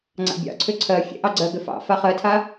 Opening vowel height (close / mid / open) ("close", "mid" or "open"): open